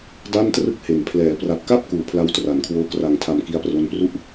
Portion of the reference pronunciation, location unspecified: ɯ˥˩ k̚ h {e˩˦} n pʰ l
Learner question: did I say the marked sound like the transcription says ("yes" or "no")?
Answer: yes